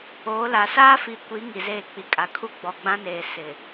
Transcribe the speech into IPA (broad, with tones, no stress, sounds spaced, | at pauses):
o˨˦ l a˨ s a˦ f i˨ kʷ i˨˦ ŋ i˨ z eː˦˨ k͡p i˨ kʼ a˨ kʰ u˦ ɡ͡b ɔ˨ ɡ͡b ã˦ n eː˨ s ɪ˨